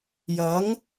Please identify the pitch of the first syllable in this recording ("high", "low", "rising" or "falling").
rising